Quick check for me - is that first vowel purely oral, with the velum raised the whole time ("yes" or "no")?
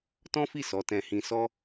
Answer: no